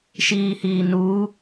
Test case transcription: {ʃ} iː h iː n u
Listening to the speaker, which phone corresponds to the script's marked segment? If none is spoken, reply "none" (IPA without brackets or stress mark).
ʃ